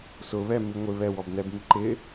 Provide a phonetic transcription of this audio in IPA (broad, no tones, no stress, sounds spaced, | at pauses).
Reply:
s ʊ β ɛ m i ŋʷ ɪ β ɛ w ɔ b n ɛ b m i ǃ ɪ